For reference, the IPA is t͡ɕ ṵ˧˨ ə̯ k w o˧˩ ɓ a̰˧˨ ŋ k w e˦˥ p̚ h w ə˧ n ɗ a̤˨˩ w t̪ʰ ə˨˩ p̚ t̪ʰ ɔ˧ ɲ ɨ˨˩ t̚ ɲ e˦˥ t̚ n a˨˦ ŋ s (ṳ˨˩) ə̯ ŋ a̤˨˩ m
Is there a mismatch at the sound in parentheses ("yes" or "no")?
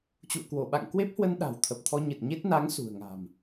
no